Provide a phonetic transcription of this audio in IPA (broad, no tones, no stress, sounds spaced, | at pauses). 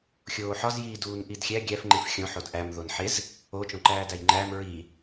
xʲ oː ħ ɒ z j i d uː n ʔ i d xʲ æ ɡʲ æ f ŋ͡ǃ ẽ f xʲ õ ħ o d ʔ æ m ð o n ħ e z | o t͡ʃ õ ǃ æː d æ j ŋ͡ǃ æː m ɹ i